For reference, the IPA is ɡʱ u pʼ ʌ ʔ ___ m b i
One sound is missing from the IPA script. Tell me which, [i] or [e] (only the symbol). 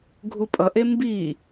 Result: e